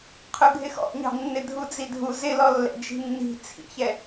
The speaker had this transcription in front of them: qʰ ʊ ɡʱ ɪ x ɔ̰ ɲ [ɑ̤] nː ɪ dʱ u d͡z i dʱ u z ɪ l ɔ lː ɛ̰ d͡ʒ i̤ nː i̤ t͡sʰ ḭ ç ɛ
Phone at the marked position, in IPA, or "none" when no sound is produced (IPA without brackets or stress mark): ɑ̤